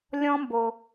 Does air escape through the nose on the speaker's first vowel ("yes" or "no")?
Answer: yes